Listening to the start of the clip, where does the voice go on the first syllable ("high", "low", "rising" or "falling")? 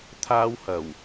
high